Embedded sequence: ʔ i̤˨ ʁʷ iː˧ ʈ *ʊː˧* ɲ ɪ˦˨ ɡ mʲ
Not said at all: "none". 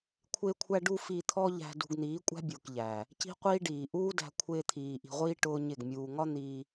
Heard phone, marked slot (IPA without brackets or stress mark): ʊː˦